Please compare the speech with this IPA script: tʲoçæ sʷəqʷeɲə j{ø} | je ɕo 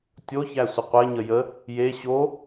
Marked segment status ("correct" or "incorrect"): incorrect